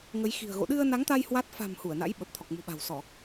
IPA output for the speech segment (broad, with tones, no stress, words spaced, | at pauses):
ŋə˨˦j xi̤˨˩ə̯ɣo̰˧˨ ɗɨ˧ə̯na˨˦ŋt̪a˧j hwa˦˥t̚ fa̤˨˩m hu˧˩ə̯na̰˧˥j ɓə˨˩p̚t̪ʰɔ˨˩k̚mṳ˨˩ɓa̤˨˩w sɔ˧˩˨